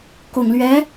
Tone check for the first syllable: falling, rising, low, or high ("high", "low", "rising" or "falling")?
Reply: low